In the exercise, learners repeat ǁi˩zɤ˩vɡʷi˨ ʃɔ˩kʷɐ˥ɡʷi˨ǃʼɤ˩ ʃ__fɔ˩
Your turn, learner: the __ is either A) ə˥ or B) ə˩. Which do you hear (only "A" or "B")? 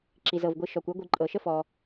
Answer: A